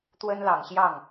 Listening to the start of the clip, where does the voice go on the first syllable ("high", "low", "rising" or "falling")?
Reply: high